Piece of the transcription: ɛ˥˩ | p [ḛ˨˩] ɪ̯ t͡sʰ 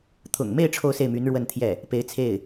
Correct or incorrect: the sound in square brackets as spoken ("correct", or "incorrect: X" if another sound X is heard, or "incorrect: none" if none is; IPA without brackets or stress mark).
incorrect: e˧˥